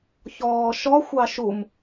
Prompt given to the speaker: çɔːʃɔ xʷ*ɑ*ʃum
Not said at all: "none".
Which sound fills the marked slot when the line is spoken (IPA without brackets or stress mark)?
ɑ